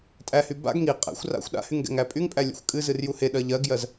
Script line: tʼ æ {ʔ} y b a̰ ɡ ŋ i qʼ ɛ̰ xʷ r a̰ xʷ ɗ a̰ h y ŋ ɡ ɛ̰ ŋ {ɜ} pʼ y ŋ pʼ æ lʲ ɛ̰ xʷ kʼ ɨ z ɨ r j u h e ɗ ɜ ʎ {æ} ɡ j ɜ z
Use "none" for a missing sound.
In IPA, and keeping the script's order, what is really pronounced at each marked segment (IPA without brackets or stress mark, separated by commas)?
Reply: h, æ, ɜ